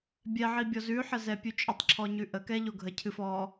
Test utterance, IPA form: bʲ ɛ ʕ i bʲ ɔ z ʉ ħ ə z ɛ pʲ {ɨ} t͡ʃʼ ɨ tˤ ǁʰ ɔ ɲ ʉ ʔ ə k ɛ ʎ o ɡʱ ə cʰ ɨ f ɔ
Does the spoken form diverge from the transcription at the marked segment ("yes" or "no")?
yes